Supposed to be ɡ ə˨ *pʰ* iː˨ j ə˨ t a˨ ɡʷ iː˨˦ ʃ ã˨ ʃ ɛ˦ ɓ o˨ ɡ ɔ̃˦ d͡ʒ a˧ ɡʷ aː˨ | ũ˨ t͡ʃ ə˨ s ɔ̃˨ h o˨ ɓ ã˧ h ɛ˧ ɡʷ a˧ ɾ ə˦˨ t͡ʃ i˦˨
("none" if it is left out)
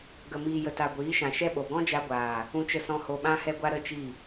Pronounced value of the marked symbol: m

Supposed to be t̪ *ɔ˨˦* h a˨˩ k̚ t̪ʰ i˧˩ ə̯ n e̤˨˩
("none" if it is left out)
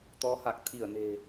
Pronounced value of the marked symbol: ɔ˨˦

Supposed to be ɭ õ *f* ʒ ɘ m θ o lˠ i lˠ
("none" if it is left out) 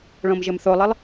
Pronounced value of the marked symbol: m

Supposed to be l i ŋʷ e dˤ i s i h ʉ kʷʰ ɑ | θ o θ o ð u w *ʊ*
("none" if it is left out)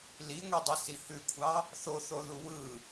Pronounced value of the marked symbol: ɯ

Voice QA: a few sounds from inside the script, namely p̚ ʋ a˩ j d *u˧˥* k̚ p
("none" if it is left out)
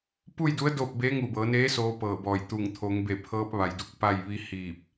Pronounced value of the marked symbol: u˧˥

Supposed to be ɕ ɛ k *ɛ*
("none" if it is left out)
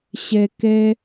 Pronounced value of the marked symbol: ɛ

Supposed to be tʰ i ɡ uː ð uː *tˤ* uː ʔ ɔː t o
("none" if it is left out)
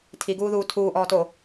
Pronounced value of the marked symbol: tʰ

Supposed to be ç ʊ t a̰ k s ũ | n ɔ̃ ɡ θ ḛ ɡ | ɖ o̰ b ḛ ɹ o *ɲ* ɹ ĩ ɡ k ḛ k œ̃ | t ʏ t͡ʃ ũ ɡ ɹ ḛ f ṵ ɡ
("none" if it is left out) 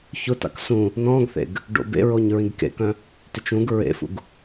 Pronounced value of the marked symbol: ɲ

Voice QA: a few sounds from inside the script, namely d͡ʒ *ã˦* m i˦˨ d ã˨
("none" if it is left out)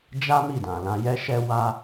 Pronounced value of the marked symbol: a˦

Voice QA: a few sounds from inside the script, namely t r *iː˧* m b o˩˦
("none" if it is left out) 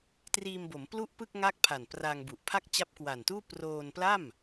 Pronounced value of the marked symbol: iː˧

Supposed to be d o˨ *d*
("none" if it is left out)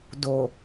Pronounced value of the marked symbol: none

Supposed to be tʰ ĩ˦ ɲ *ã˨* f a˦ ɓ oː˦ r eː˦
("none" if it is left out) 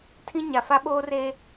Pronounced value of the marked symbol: a˨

